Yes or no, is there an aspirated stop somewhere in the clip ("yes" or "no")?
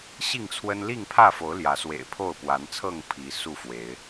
yes